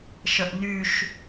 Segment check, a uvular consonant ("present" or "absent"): absent